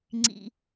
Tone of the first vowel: low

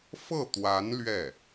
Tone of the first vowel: falling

